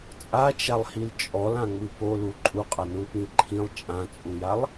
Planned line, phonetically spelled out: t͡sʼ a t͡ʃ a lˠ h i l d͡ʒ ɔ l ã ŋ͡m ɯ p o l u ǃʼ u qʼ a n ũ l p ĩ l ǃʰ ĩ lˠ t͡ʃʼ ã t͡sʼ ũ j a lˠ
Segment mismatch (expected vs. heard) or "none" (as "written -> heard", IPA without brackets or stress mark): d͡ʒ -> t͡ʃʼ